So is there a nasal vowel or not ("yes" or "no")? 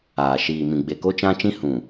yes